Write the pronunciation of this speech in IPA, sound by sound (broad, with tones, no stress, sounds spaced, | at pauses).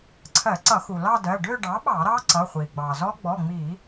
ǀʰ ɜ˧˩˧ ǀ ʌ˧˩˧ x u˩ l ɑ˥˧ d ɜ˩˧˩ ɖ ø˥˧ ɖ ɑ˩˥ ɓ ɑ˧˩˧ ɾ ɑ˦˥ ǀ ʌ˩˧˩ χʷ i˩ ɡ͡b ɑ˩ z ɔ˦˥ ɡ͡b ɔ˩˧˩ ŋ͡m i˧˩˧